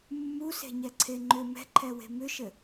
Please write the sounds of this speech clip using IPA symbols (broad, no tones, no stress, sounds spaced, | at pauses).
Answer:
mː u s e̤ ɲ ɛ ǀʰ e ŋ͡ǃ ʏ m ɛ̤ ǃʰ ɛ w e̤ m ʏ ʃ ɘ